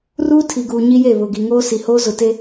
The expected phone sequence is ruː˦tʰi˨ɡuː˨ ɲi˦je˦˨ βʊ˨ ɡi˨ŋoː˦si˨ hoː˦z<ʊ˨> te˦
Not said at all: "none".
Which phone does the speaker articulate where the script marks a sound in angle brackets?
ʊ˨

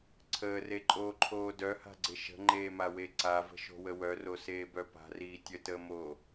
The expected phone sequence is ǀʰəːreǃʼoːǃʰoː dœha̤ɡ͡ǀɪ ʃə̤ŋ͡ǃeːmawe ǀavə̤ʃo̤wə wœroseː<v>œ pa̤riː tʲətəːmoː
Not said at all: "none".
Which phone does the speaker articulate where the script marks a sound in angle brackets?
b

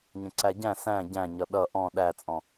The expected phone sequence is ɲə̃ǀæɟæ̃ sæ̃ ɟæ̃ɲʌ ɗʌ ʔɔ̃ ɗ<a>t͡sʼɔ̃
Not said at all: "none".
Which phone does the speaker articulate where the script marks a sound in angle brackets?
æ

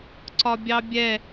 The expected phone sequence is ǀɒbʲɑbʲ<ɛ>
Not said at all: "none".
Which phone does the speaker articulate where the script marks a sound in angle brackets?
ɛ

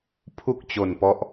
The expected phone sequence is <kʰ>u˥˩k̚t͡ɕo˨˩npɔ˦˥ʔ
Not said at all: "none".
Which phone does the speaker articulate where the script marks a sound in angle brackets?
pʰ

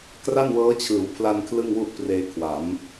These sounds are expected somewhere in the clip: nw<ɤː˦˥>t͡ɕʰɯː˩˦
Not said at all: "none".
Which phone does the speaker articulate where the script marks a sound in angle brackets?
ɤː˦˥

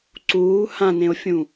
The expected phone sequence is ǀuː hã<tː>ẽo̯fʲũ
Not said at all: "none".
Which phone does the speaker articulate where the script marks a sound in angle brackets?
n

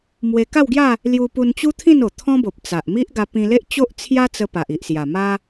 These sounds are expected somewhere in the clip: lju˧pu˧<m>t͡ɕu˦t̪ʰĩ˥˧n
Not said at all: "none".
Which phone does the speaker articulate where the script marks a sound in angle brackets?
n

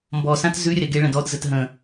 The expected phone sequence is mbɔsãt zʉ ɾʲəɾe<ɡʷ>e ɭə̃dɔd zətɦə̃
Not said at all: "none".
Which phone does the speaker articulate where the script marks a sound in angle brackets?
ɡ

